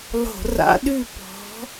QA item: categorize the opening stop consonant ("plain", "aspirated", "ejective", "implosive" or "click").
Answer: implosive